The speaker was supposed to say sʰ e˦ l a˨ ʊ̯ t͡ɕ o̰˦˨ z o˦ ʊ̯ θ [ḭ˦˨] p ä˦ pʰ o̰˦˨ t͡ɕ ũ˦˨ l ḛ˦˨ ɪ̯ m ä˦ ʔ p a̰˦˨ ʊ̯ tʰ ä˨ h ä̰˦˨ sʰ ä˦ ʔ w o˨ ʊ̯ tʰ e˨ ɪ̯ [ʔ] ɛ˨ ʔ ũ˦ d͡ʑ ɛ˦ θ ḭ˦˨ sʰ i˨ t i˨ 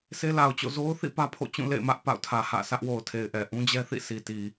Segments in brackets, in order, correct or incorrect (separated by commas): correct, correct